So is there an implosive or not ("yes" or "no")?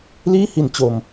no